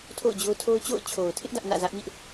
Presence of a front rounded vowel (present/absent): absent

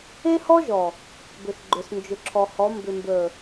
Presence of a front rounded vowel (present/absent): present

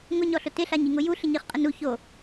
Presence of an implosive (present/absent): absent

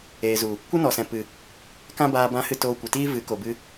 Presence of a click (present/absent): absent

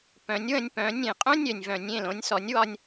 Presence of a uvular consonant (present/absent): present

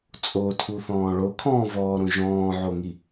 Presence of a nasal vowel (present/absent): present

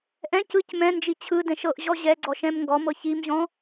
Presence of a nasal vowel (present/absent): present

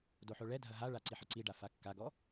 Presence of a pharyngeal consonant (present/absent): present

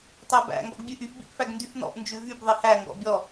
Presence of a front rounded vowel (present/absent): present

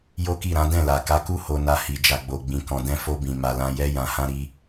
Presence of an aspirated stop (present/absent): absent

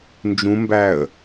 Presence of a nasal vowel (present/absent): present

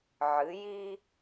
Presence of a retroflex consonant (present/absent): absent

